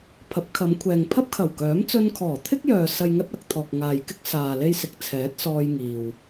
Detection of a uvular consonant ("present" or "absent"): absent